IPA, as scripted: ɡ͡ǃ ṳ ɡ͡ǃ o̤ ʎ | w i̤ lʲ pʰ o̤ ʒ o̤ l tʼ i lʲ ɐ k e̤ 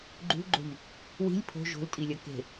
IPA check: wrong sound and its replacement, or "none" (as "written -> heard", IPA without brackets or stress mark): none